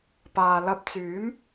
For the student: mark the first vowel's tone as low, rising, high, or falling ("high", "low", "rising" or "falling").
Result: low